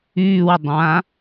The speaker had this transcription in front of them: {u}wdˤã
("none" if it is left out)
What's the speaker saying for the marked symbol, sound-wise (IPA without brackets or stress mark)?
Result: y